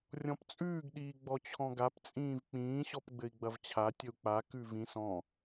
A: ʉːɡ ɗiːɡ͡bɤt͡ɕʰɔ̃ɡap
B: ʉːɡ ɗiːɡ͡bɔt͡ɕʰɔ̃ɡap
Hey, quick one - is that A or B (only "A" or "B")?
B